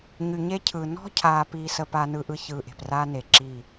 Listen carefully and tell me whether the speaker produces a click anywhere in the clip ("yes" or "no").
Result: yes